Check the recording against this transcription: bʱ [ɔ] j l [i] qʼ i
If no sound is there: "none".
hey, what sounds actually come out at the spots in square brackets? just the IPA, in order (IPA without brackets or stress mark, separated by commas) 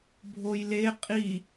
o, e